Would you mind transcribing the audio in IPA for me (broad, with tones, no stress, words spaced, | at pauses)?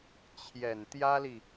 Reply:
t͡ɕʰjɛ˨˩nt̪jä˥li˨